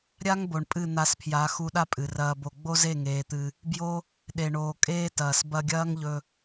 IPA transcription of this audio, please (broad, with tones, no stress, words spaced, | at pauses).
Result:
ɾʲa˦ŋbo˨ɳ pʼɨ˦˨n̪a˧spʰja˨˦ xu˧ɗa˦pʼɨ˨rɐː˧ bo˨ɡ͡bo˦ze˦˨ ŋeː˧t̪ɨ˧ | bjo˧ | ɗe˨ɳoː˨kʼeː˦tɐː˨s bɐ˧ɡʲɐː˦ŋʎɵ˧